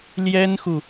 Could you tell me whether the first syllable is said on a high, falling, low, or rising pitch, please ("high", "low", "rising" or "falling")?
high